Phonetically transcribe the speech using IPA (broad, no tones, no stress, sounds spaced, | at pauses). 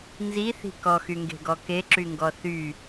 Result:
n z i θ i̤ k ɔ x y ŋ ɡ e̤ ɡ ɔ k e ǁ y ŋ ɡ ɔ θ y